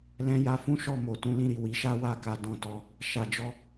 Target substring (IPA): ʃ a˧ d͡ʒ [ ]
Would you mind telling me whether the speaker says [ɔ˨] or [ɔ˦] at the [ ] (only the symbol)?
ɔ˦